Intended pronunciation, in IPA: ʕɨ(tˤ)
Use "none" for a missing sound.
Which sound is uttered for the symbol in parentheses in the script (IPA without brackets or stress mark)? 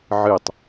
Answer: tˤ